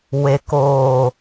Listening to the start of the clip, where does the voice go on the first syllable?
low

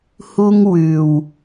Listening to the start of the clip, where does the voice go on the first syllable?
high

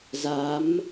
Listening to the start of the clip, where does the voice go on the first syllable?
rising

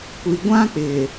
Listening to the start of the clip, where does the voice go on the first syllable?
low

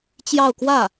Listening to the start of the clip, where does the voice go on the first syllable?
falling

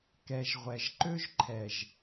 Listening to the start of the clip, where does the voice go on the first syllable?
low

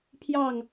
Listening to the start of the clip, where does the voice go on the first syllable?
falling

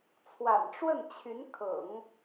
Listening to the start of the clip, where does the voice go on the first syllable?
low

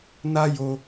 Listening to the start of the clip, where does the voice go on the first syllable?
high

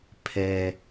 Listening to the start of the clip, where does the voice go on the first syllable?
low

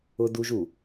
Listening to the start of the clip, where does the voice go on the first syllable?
high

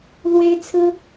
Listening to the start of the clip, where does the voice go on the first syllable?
high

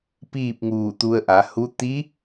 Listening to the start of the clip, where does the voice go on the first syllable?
falling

